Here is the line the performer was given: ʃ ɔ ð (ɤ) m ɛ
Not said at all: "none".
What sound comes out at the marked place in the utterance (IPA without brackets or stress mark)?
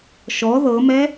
ɤ